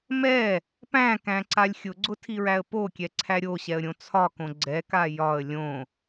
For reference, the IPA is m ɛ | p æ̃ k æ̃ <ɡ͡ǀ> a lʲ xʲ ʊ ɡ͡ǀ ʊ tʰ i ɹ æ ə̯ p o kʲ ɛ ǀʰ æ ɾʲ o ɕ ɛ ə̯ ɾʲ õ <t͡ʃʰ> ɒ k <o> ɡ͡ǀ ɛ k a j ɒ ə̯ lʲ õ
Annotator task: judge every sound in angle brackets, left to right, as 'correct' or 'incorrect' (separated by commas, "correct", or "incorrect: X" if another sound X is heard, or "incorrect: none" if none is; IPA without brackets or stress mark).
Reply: incorrect: ǀ, incorrect: t͡sʰ, incorrect: õ